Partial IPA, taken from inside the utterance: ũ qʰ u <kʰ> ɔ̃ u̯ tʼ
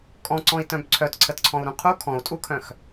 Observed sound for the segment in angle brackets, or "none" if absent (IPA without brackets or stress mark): kʰ